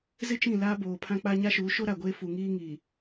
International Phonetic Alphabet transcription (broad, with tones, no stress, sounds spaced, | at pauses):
z ɪ˦ t͡ʃ ĩ˦˨ l aː˦ b oː˨ pʰ ã˦ k͡p a˦ ɲ a˦ ʃ uː˨˦ ʃ o˦ ɾ a˨ ɡʷ eː˦ f u˨ ŋ iː˦ ŋ iː˨